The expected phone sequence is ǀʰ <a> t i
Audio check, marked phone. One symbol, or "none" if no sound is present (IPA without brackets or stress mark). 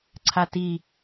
a